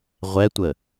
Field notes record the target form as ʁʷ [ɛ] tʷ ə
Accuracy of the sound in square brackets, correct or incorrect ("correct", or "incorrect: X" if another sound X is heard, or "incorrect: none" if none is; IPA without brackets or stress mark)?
correct